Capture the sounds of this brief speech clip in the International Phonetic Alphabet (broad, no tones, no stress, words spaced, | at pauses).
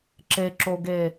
ǁeǁoɡe